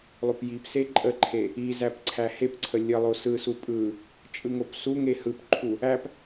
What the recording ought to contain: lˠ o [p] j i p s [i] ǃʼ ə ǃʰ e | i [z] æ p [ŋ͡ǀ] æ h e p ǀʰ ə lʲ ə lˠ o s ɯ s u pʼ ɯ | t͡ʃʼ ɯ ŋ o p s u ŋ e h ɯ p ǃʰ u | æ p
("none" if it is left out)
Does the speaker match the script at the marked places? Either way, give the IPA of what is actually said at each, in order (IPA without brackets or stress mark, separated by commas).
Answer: p, e, z, ǀʰ